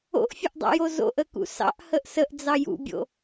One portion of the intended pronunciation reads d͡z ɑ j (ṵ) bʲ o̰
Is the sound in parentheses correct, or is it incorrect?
correct